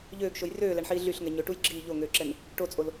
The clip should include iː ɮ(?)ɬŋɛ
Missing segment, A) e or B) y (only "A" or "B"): B